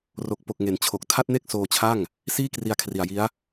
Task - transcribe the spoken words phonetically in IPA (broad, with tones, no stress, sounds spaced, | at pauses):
r o˨˩ k̚ p o˨˩ k̚ ŋ e˩˦ n t͡ɕʰ o˨˩ k̚ tʰ a˥˩ t̚ n e˥˩ k̚ s oː˧ t͡ɕʰ a˥˩ ŋ | s iː˥˩ k r i˧ a̯ kʰ r i˨˩ a̯ j i˦˥ a̯